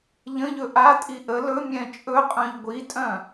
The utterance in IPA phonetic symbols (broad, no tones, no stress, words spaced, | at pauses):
ʎə̃ʎɵ ʔatʼi ʔə lɵ mʲɛ̃t͡ʃʼɵqʼœ̃ʎ ɡʷitʼœ̃